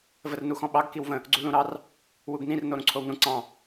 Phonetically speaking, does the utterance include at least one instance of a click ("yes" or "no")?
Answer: yes